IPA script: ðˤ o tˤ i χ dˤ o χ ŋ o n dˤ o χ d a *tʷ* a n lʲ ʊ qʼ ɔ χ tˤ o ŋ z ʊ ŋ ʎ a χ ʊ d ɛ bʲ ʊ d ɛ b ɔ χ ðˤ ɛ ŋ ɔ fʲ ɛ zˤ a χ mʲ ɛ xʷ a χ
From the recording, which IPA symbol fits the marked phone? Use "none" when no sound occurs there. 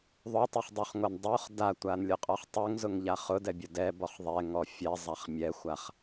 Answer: tʷ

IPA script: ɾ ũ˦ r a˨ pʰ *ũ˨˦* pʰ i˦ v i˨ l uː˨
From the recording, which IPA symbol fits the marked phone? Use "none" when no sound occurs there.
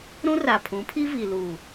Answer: ũ˨˦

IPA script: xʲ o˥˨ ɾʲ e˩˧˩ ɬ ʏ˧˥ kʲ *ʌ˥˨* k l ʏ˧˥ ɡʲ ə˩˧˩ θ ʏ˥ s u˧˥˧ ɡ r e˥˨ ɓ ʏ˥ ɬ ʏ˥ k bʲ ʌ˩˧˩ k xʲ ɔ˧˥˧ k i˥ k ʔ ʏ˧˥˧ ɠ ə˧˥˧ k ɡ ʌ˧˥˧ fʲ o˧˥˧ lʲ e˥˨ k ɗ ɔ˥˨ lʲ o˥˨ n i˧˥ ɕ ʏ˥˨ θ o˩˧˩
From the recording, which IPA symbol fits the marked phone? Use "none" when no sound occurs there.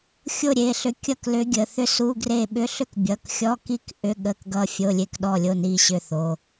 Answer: ʌ˥˨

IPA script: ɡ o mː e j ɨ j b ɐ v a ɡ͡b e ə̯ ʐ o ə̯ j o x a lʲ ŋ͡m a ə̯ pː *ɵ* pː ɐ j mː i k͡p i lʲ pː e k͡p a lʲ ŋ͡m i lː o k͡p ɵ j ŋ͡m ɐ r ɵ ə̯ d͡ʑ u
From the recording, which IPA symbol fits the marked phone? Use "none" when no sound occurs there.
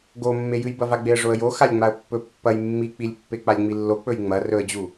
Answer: ɵ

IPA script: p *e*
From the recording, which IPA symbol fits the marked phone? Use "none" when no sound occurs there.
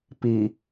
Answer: i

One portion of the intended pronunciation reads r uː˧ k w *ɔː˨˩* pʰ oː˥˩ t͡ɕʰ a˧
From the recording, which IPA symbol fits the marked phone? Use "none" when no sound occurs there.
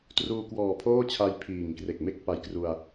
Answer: ɔː˨˩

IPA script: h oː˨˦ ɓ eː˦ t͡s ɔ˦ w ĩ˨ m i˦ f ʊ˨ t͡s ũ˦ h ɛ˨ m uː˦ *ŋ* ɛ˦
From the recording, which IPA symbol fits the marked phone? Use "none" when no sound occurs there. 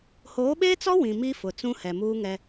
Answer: ŋ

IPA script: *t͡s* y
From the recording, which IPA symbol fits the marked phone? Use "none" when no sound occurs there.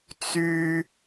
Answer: t͡s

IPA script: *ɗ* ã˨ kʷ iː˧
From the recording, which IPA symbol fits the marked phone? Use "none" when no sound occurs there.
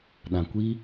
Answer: ɗ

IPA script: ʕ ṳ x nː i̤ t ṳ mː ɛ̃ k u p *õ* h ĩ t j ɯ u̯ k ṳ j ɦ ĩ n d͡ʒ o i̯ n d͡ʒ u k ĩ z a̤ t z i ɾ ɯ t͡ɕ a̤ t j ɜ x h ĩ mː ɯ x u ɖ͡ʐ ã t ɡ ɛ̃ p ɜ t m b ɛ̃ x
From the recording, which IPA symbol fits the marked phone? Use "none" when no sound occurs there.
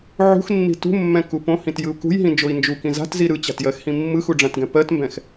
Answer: õ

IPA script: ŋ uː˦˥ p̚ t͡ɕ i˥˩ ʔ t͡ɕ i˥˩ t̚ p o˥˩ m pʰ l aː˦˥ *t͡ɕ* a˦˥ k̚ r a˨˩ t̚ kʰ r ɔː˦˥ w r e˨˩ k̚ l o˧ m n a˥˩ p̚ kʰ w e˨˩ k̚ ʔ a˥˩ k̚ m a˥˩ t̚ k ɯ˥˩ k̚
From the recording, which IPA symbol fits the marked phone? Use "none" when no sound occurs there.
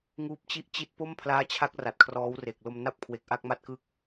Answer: t͡ɕʰ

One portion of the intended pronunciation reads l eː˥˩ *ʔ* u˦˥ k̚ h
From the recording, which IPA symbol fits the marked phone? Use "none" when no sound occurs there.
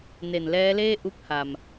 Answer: ʔ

